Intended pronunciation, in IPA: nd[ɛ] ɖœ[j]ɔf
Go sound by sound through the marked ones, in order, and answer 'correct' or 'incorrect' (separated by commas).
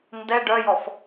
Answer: correct, correct